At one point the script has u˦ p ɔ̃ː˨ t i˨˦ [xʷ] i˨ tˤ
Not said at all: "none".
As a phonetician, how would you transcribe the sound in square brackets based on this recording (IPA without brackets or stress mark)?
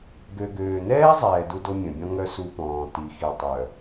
x